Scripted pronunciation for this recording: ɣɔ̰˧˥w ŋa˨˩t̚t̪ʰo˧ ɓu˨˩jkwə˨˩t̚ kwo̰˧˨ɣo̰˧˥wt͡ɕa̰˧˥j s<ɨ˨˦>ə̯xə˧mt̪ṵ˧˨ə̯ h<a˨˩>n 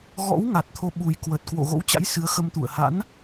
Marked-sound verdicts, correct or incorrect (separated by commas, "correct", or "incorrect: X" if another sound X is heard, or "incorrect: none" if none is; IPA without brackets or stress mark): correct, incorrect: a̰˧˥